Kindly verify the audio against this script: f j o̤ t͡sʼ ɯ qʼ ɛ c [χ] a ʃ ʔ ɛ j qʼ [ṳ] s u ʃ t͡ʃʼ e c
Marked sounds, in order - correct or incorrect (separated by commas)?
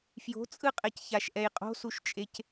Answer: incorrect, incorrect